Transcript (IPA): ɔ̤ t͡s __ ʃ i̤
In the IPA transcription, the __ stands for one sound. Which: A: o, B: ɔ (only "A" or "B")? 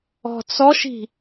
B